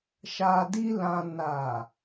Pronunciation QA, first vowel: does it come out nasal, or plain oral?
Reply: oral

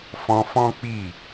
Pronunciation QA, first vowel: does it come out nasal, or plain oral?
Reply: nasal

